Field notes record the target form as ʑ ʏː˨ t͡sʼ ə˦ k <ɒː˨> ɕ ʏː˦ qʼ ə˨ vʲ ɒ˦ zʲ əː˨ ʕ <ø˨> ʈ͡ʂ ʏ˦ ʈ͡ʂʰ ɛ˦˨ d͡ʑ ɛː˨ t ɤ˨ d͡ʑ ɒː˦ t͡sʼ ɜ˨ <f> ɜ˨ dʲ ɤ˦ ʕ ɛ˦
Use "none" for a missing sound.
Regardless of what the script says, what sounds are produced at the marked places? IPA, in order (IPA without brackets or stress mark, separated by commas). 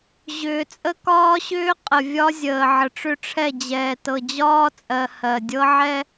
ɒː˦, ə˨, h